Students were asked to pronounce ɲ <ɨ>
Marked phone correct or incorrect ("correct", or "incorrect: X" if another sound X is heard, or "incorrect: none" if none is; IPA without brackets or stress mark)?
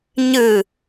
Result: correct